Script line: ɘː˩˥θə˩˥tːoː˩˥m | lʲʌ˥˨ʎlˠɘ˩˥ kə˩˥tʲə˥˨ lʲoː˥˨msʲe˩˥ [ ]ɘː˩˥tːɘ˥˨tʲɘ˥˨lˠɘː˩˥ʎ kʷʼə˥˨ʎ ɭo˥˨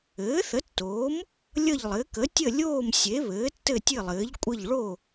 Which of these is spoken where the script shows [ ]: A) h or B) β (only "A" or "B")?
B